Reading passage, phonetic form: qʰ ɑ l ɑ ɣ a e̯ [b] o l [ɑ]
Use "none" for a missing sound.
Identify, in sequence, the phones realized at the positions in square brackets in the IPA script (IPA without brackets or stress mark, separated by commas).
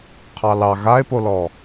p, ɔ